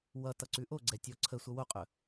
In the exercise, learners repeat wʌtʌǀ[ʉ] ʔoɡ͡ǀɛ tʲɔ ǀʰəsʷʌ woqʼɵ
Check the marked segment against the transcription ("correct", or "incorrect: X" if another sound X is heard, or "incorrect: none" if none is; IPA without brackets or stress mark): correct